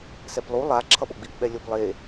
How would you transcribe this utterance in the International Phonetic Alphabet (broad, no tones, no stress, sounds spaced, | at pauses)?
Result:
s ɛ p lˠ u lˠ a ǁʰ ʌ ɓ o ɡ͡b i p ɓ ɛ lʲ o p lˠ e